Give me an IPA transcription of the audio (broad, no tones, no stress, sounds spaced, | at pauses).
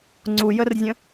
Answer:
ŋ͡ǀ u j ə r zʲ ə̃